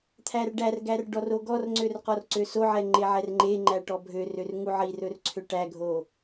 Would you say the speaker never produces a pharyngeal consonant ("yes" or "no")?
no